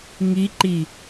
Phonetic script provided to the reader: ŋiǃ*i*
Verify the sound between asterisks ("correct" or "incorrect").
correct